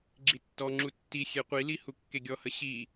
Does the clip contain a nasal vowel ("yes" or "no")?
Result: no